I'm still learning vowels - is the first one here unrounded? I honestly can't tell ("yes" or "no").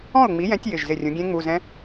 no